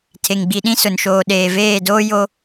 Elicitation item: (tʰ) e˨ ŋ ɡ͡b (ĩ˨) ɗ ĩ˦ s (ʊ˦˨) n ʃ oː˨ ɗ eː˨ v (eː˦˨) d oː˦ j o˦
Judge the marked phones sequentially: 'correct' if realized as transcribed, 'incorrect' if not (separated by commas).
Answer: correct, incorrect, incorrect, correct